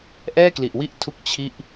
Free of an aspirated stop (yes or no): no